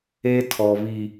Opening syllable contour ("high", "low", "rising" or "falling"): high